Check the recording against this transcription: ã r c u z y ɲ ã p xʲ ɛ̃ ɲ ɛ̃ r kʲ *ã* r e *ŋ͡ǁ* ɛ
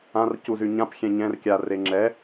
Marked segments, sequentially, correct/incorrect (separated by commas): incorrect, correct